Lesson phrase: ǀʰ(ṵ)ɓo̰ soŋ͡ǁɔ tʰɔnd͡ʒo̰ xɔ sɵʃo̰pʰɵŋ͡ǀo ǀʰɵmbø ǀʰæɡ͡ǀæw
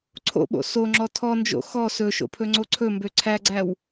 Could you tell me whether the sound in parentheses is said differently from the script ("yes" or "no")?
yes